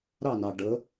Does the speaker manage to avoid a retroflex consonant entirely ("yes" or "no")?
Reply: no